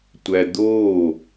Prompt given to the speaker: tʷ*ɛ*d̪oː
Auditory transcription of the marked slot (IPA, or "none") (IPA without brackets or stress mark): æ